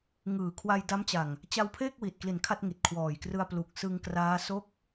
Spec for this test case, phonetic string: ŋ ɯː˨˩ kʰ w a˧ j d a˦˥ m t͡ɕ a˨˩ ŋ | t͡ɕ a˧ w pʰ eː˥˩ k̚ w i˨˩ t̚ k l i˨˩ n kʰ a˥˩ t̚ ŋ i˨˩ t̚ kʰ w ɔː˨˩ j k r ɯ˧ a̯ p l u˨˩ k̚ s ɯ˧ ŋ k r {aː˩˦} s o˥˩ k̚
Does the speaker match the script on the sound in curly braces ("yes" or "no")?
no